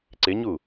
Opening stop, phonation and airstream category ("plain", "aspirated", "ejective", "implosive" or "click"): click